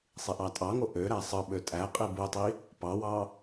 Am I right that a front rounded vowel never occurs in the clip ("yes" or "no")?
no